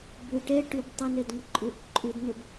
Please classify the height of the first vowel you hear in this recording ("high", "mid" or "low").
high